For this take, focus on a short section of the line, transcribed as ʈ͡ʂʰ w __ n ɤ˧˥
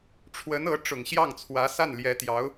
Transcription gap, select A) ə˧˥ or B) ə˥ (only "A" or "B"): A